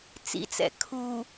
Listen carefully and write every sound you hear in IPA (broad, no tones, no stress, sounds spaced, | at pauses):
t͡s ḭ t͡s ɛ̰ kʰ u